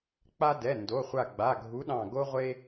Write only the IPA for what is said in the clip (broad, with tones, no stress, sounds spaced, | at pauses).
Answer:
k͡p a˦ d ɛ˩˧˩ n d o˩˧˩ χʷ a˧˩ ɡ͡b a˩˧˩ ɡʱ u˨˥ ɗ ɑ̃˧˩ ɡ o˦ ʁʷ e˦